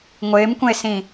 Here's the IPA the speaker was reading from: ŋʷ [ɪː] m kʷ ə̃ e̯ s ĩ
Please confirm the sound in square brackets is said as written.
yes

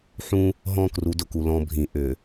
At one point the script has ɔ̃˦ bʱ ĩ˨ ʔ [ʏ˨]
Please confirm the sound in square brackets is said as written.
yes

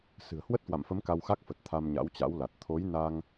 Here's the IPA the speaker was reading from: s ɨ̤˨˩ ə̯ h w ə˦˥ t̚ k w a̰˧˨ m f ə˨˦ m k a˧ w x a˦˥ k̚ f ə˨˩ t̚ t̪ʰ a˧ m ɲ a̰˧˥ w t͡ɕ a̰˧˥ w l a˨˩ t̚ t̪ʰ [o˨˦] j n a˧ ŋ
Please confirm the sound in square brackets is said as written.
yes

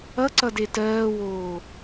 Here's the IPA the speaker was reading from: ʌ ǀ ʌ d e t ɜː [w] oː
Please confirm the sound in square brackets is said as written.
yes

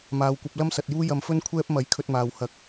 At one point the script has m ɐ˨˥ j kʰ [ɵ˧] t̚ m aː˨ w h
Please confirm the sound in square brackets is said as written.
yes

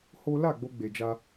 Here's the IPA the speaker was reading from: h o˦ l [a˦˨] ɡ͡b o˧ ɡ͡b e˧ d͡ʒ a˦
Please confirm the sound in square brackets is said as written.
yes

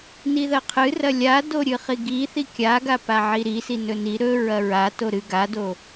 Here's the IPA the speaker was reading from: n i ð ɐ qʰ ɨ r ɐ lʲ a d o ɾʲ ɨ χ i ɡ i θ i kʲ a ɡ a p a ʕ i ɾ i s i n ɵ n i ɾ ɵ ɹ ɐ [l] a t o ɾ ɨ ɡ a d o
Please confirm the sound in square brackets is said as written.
no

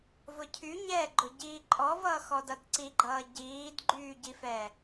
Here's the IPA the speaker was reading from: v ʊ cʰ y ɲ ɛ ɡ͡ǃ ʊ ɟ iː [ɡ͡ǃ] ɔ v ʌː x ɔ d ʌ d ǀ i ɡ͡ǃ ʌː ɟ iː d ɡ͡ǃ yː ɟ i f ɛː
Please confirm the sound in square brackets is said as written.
no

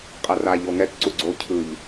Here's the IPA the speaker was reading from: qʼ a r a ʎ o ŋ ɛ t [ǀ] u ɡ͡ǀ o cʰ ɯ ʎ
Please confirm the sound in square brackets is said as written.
yes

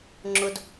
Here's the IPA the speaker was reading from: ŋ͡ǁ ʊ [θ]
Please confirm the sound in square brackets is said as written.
no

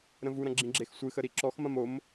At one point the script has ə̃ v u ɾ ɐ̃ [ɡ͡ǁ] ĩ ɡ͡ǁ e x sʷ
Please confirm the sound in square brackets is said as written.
yes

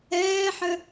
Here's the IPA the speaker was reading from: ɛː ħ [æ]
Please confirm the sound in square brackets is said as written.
no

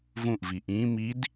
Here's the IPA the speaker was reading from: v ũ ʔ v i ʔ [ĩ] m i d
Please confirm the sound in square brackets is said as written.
yes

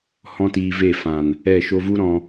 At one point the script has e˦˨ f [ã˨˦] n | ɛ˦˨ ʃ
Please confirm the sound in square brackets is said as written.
no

